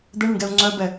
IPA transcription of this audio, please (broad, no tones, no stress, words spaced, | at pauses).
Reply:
d̪əɳəɳɡɛu̯ ŋ͡ǀœbɛ